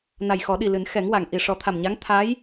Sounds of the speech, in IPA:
n a˨˩ j x ɔ˨˩˦ ɗ i˨˩ l ɨ˨˩˦ n x ɛ˨˩˦ ŋ w a˨˩˨ ŋ ʔ i˨˩ ʂ ɔ˨˩˦ t̪ʰ a˨˩ m ɲ a˧˥ ŋ t̪ʰ a˧˥ j

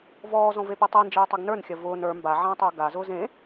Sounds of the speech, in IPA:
v ɔː z ɔ̃ v e p i tˤ i n d͡ʒ iː tˤ i ɡ n ə˞ n xʲ ɐ v ʊː n ə˞ m b a ʕ ɐ̃ː tˤ ʊː ɡ a z ʊː z ẽ

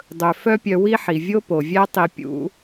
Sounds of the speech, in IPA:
dˤ ɵ˧ f œ˦ pʲ œ˧ w i˦ ħ i˨ vʲ o˦ p o˨ vʲ æ˦ tˤ i˧ pʲ ṵ˦

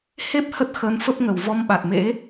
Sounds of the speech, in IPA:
h e˦˥ p̚ h ə˦˥ t̚ x ə˨˦ n f ə˦˥ p̚ ŋ ə˨˩ w v ɔ˧ m ɓ a˨˩ t̚ m ḛ˧˥

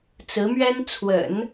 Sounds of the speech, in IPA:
t͡s ɹ̩˧˥ m ɥ ɛ˥ n t͡sʰ w ə̰˨˩˦ n

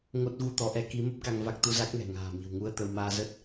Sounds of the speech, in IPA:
ŋ o˦˥ t̚ ɣ u˧ t̪ ɔ˨˦ ʔ ɛ˨˦ k i˨˦ m ə˦˥ p̚ k a˧ ŋ v a˦˥ k̚ t̪ u˧ z a˦˥ k̚ ŋ ɛ̤˨˩ ŋ a̤ː˨˩ m i̤˨˩ w ŋ u˧ ə̯ t̪ ə˧ w m aː˧ z ə˦˥ t̚

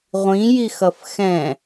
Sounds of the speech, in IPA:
ʁʷ ĩ j i x ʌ f x ɛ̃

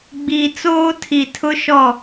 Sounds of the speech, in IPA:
ɡ͡b iː˨ t͡s oː˦ tʰ i˨ tʰ ʊ˦ ʃ ɔ˦˨

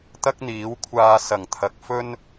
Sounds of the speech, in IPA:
t̪ ɐ˥ k̚ n̪ iː˨˥ w kʷʰ aː˧ s ɐ˨˩ ŋ t̪ʰ ɐ˨ k̚ f ɵ˥ n

